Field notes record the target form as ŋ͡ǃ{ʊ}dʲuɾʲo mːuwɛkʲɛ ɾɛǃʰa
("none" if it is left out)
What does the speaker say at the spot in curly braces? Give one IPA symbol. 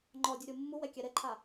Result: ɔ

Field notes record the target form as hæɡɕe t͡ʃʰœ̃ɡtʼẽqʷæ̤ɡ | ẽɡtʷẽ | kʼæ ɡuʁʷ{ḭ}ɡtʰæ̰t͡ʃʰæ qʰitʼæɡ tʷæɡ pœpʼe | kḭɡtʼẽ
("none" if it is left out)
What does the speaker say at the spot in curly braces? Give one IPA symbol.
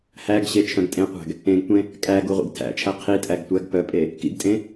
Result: ḭ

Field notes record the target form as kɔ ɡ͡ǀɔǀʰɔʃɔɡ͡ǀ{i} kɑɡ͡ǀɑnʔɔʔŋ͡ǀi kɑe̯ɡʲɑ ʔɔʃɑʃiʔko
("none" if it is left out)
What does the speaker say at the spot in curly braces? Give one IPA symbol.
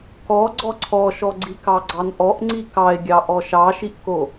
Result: i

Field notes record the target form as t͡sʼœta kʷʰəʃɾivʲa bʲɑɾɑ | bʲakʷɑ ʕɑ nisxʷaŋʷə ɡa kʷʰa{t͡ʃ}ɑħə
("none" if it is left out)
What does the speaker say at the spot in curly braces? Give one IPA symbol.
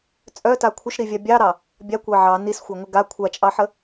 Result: t͡ʃʼ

